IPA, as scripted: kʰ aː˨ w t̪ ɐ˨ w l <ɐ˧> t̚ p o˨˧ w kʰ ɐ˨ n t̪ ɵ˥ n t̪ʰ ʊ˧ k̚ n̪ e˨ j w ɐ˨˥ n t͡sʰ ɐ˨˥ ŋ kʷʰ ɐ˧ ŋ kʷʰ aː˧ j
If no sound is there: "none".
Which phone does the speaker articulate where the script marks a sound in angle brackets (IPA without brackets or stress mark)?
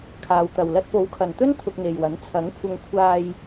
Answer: ɐ˧